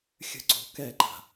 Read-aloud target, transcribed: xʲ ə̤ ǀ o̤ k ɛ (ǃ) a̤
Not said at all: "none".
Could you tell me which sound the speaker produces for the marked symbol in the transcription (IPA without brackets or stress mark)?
ǃ